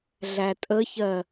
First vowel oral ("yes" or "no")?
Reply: yes